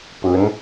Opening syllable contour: rising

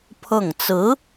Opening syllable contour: falling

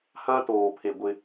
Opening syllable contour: high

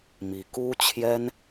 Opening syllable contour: rising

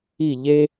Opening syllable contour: falling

